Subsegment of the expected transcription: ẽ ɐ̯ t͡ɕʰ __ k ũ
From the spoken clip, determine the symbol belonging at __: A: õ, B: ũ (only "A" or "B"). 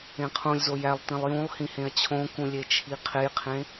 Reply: A